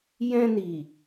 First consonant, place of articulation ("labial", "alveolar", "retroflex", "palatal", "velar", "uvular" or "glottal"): palatal